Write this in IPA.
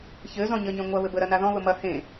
ç ɘ z ɔ̃ ɲ ɘ ɲ ẽ ŋʷ ɐ β ɘ b ə ɾ ɐ n a ð ɔ̃ β ə m ɐ h ẽ

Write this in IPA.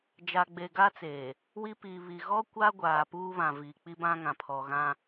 d͡ʒ a˨ ɡ͡b e˨ ɡ a˦ t͡s eː˨ | w i˦ p i˨ β i˨ ɣ ɔ˦ kʷ a˦ ɡʷ aː˨ p uː˦ β ã˨ v iː˨ k͡p i˦ b ã˦ ŋ ã˨ pʰ ɔ˨ ɣ ã˦

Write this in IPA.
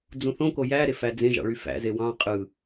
d͡z ũ θ õ k o j æ ɾ e f æ d͡z ẽ ʒ ɑ̰ ɭ y f æ̰ z e w ɑ̃ qʼ ɯ

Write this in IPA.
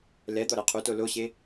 l ɛ d̪ ɔ ɾ e qʰ u t o l o ɕ e

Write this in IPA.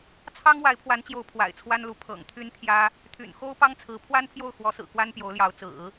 t͡sʰ ɑ˥ ŋ w a˧˥ ɪ̯ pʰ w a˧˥ n t͡ɕ j o˧˥ ʊ̯ pʰ w a̰˨˩ ɪ̯ t͡sʰ w a˥ n l u˧˥ pʰ ɤ̰˨˩ ŋ t̪ʰ y˥ n t̪ʰ j ä˥ | t̪ʰ y̰˨˩ n x o˥ ʊ̯ p ɑ˥ ŋ t͡sʰ ɹ̩˧˥ pʰ w a˥ n pʰ j o˥˩ ʊ̯ x w ɔ˧˥ s ɹ̩˨˩ k w a˥ n p j o˧˥ ʊ̯ l j ɑ˧˥ ʊ̯ t͡s ɹ̩˨˩˦

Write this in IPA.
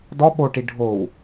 d ɔ ɓ o ʈ i ɖʱ o w

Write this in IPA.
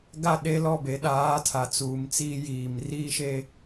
ɡ a˦˨ ɗ e˦ l ɔ˦˨ b e˨ ɗ aː˨˦ tʰ a˨ t͡s uː˨ m t͡s iː˦ j iː˨ m r iː˦ ʃ e˦

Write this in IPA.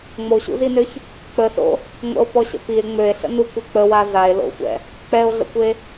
ŋ͡m o ɕ ṵ z i n ø ç | k͡p ə s o̰ | ŋʷ ə̰ o̯ p ɔ ɕ ə̰ p i e̯ ŋ͡m ø e̯ ɬ ə̰ n u kʷ e k͡p ə w a z a e̯ l o̰ xʷ ɛ̰ | k͡p ɛ o̯ ɮ ə̰ kʷ e

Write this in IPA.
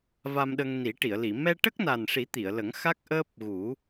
v a˧ m ɗ ə˧ ŋ n i˨˩˦ ʈ i˨˩˨ ə̯ l i˨˩˨ m ɛ˧ ʈ ə˦˥ k̚ n a˨˩ n ʂ i˨˩˦ t̪ i˨˩˨ ə̯ l ə˨˩˦ ŋ x a˦˥ k̚ ʔ əː˦˥ p̚ ɣ u˨˩˦

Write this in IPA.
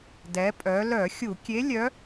d ɛ˩˧ pʼ œ˩˧ l œ˧˩˧ xʲ u˧˩˧ kʲ e˧˥ lʲ œ˧˥

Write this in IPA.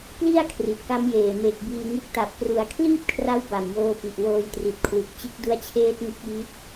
p l i˥˩ a̯ kʰ r i˨˩ t̚ k a˦˥ m j eː˨˩ m e˨˩ k̚ b iː˧ ŋ ɯ˦˥ k̚ t a˨˩ p̚ k r u˩˦ a̯ kʰ l iː˥˩ p̚ kʰ r a˦˥ w b a˨˩ m j oː˧ p i˨˩ ʔ w oː˧ j t r i˨˩ t̚ kʰ w ɯ˨˩ k̚ t͡ɕ ɯ˦˥ k̚ d u˦˥ a̯ t͡ɕʰ eː˦˥ t̚ ŋ ɯ˦˥ k̚ j i˦˥ t̚

